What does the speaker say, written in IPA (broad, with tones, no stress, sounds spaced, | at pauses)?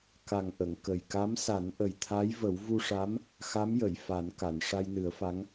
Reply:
k a˨˩ ŋ ʔ ə˨˩˨ ŋ k ə˨˩ j k a˧˥ m s a˨˩˦ n ʔ ə˨˩ j t̪ʰ a˧˥ j v ə˨˩˦ w v u˧ ʂ a˧˥ m | x a˧˥ m j ə˨˩˨ j f a˨˩˦ n k a˨˩˨ n ʂ a˧ j n ɨ˨˩˦ ə̯ f a˧˥ ŋ